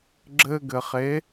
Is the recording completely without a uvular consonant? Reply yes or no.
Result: no